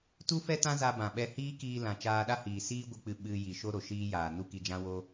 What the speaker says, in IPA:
tu˦fɛ˦ tã˦za˧bã˨ɓɛ˧ hiː˦kiː˧lã˨ t͡ʃaː˧ɗa˦hiː˨ siː˦ɡʷɨ˧k͡pɨ˧ ɓɨ˧ ji˧ ʃo˦ɾo˨ʃiː˦jaː˨ nu˦ki˧d͡ʒã˦ wo˦

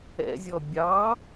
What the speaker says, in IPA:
ɛ̰zʲɔ bʲɑ

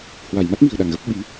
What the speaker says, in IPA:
hwa˧˩j ma˦˥t̚mi̤˨˩ə̯ ɗa˧˩ŋɣə˦˥p̚ ɓi˨˦

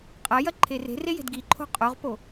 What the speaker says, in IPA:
qʼɐjɐ ǃʰere̤re je̤dɡiǃʰo̤ qʼoʁpo

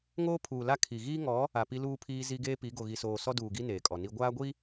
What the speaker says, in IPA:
ŋoː˦pʰuː˨la˦ kʰi˨ ɣiː˦ŋɔ˨˦ | a˨pi˦luː˦pʰiː˦ zi˦ɡeː˦pi˨˦ ɡo˨ɣi˨soː˨ sɔ˦duː˨ɡi˦ neː˨kʼɔ˨ni˦ ɡʷaː˦ɡʷi˦

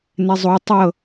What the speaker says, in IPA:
nɛzˤo tˤɤ

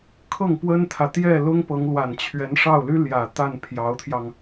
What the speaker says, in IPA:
kʰɤ˥˩ŋpwə˥nt̪ʰä˨ t̪jɛ˥˩lʊ˥ŋpɤ˧˥ŋ lwa˨˩nt͡ɕʰɥɛ˧˥n ʂɑ˥˩ʊ̯ ly˥ljä˨˩ t̪a˥˩n pʰjɑ˧˥ʊ̯t̪ʰjɑ˧ŋ

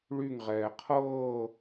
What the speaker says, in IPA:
ɭyŋʁɛː qʰɤː

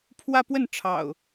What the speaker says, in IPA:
pʰwä˦pwə˥˨nʈ͡ʂʰɑ̰˨˩ʊ̯

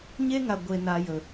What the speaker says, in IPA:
ɲe˦ŋa˨ ɡʷe˨ na˨jə˨

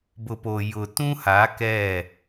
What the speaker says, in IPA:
bʊ˨po˨ jʊ˨tũ˦ha˨˦ kɛ˦˨

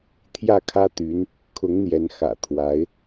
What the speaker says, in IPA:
t̪ʰjä˥˩kʰä˥t̪y˧˥n | kʰʊ˧˥ŋn̪jɛ˧˥n xä̰˨˩t̪ʰwa˧˥ɪ̯

